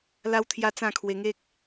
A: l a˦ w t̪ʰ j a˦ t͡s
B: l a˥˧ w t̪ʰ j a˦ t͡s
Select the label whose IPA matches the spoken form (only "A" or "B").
A